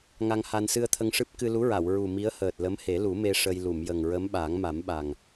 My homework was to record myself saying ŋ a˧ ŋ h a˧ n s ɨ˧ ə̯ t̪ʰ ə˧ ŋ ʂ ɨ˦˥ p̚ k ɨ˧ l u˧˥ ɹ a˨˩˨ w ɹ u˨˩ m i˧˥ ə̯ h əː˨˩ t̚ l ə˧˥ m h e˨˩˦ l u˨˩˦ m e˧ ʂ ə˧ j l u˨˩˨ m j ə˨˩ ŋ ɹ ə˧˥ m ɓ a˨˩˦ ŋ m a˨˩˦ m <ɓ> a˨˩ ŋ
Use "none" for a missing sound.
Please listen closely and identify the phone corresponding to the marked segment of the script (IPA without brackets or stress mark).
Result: ɓ